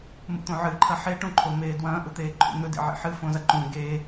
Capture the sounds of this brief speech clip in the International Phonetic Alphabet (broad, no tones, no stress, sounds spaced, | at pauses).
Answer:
m ṵ t̪ õ ʕ ɨ ǃʰ ɐ ħ e ʈ ũ ǃʰ o m eː d w ɐ̃ː ʔ u t̪ eː ǃʰ ṵ n̪ ɵ d ḭ ʕ ḭ ħ ɨ f õ z ɐ ǃ ũ ɡ eː